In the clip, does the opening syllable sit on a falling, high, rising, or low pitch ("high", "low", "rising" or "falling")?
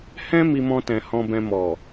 high